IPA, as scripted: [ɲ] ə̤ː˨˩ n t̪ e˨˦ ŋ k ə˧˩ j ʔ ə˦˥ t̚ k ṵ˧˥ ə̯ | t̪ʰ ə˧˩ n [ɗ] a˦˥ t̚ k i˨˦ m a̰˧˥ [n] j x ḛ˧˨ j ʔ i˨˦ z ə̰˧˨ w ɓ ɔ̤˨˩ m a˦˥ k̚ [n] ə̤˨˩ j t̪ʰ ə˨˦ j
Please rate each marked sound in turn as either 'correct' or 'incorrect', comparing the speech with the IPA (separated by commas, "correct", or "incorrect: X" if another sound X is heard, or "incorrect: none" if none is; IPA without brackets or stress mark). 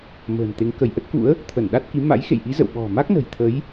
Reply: incorrect: m, correct, incorrect: none, correct